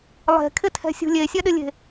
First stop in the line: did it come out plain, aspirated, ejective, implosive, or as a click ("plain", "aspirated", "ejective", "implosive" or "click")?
aspirated